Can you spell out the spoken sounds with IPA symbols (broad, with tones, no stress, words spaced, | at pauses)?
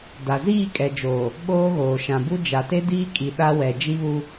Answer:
da˨ ziː˦˨kʼɛ˨d͡ʒoː˨ | ɓoː˦ɣoː˨ ʃã˨bu˦ d͡ʒa˨te˦diː˦ kʼi˨ ɗa˦wɛ˨ d͡ʒi˦βu˦